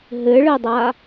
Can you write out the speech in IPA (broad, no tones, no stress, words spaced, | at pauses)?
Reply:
ɦɘɭɘdˤa